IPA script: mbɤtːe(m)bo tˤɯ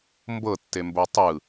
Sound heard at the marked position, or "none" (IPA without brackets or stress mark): m